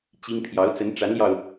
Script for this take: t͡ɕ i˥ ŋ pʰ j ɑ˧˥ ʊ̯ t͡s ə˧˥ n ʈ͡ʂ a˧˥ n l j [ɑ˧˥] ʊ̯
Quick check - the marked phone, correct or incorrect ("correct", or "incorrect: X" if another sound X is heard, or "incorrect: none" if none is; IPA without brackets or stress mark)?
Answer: incorrect: ɑ˧